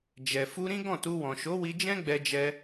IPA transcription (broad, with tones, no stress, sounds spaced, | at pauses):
d͡ʒ ɛ˨ f u˧ ɾ ĩ˦ ɡ ɔ̃˦˨ t u˧ w ɔ̃˨ ʃ o˨˦ w i˧ d͡ʒ ɛ̃˦ ɡ͡b ɛ˧ d͡ʒ ɛ˧